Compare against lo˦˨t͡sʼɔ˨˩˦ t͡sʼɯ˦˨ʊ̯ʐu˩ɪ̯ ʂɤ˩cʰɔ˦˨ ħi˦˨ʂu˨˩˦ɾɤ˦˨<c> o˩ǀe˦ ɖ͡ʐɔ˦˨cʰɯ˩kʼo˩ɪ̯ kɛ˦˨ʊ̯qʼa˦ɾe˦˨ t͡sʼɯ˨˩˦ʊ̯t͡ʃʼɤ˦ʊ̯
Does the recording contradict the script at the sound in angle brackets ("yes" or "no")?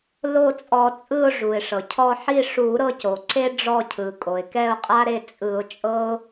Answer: no